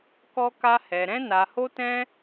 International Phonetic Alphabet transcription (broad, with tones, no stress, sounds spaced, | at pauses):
k ɔ˦ k a˦ h ɛ˧ ɾ ɛ̃˦ n a˧ h o˦ t ɛ̃˦